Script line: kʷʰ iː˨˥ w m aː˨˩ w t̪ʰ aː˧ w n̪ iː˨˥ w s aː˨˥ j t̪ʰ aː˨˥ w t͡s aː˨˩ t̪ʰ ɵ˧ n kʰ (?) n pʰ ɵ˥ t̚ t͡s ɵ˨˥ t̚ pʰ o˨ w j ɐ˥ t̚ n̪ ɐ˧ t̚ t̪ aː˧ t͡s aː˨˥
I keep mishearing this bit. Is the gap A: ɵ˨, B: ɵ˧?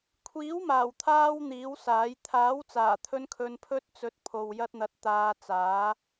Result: B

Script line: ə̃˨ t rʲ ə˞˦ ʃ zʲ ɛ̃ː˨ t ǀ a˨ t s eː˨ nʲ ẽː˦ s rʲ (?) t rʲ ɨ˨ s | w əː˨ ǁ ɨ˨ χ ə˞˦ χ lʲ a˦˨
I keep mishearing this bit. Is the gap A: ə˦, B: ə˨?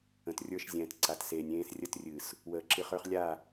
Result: A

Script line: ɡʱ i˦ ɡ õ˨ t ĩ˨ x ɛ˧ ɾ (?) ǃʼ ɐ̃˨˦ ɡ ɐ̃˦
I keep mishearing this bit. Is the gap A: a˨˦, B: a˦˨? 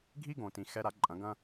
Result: A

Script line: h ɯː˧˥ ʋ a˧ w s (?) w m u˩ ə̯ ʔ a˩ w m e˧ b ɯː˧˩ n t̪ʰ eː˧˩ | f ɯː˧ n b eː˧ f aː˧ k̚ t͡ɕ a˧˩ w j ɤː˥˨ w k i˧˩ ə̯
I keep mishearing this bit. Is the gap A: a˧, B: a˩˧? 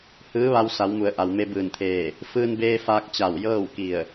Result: B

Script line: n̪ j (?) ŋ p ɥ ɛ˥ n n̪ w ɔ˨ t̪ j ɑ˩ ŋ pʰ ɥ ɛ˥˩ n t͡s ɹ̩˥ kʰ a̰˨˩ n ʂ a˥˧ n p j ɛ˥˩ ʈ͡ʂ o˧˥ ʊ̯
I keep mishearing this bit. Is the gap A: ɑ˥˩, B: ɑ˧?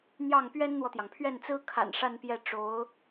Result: A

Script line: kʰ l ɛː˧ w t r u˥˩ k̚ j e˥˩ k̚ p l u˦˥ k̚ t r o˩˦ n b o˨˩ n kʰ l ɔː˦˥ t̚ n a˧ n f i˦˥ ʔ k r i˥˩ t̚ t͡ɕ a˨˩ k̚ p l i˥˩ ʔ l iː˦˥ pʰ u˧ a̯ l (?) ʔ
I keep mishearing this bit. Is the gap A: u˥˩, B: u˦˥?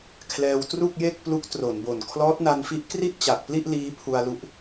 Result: B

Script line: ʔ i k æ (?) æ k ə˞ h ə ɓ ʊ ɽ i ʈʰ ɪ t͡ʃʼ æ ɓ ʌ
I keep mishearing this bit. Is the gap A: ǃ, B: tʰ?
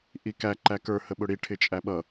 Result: A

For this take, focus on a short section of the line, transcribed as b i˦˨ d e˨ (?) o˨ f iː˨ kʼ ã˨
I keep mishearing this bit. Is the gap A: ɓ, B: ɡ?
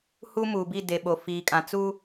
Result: A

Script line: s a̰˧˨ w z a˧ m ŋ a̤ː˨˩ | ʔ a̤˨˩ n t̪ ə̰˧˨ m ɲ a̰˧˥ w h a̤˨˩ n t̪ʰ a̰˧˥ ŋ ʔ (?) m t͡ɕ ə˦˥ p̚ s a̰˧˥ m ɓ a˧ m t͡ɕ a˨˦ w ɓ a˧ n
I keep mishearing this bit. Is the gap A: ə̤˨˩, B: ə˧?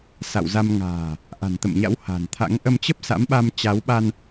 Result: B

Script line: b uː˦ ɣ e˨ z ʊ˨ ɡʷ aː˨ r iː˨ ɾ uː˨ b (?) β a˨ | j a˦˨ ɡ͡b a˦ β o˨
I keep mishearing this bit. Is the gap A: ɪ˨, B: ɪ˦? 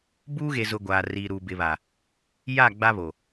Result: A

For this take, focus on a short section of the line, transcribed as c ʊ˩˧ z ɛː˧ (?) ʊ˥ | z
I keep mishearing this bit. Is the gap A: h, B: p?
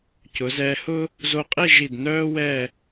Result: A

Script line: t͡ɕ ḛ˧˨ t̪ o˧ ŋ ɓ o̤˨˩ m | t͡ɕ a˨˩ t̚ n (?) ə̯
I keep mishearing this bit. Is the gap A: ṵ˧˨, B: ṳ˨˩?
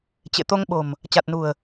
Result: B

